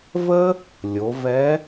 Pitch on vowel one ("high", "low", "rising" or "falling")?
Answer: high